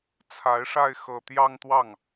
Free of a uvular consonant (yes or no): yes